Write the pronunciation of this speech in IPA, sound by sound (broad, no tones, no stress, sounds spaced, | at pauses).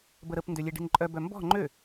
b ə ɾ ə p n d ø lʲ e ɖ i̤ n ǃʼ œ b œ m b ɔ̤ ŋ͡ǃ ø